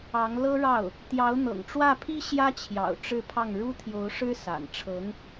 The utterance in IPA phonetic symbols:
ɑ˧˥ ŋ l ɤ˥ ɻ ɑ˥˩ ʊ̯ | t̪ j ɑ˧˥ ʊ̯ n̪ ɤ̰˨˩ ŋ ʈ͡ʂ w ä˥˩ pʰ i˥ ɕ j ä˥ t͡ɕʰ j ɑ̰˨˩ ʊ̯ ʈ͡ʂ ɻ̩˥˧ pʰ ɑ˥˩ ŋ ɻ u˥ t̪ʰ j o˧˥ ʊ̯ ʂ ɻ̩˥ s a̰˨˩ n ʈ͡ʂʰ ɤ˧˥ ŋ

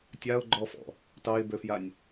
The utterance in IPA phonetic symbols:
tʲ a ʊ̯ ɡ͡ǃ ɔ f ɔ̰ | t ɑ ɪ̯ b ø f j a nʲ

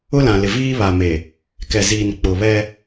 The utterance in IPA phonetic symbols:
ʊ˦ l ã˨ l ɪ˨ v iː˦ β a˨ m e˨ | k ɛ˨ z iː˨ n k͡p ʊ˨ β ɛ˦

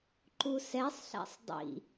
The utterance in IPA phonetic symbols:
ǃ u s ɛ sˤ ɬ æ̰ sˤ dˤ ḭ

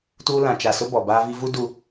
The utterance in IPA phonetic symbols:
t uː˦ l ã˨ t͡ʃ a˨ s ʊ˦ b ɔ˨ b aː˦ v i˦ v u˦ d u˨

